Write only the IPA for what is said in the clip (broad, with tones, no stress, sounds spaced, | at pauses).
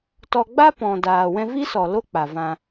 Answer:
t ɔ˧ ɡ͡b a˦ p ɔ̃˨ d aː˨ w ɛ̃˧ v i˦ s ɔ˨ l o˦ k͡p a˨ v ã˧